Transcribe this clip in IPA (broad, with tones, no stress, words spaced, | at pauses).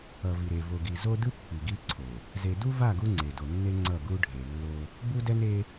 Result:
ʌ˨vi˨ɾe˨ vo˨ɡi˨ zo˦dɯ˦pːi˨ ɡi˦ǀʰo˨ | ze˨du˦va˦˨ ɡu˦ŋ͡ǀe˨do˨nːe˦ ŋ͡ǀʌ˦˨ɡu˦ ɖʱe˨lːo˦ | bu˦dɛ˦ne˦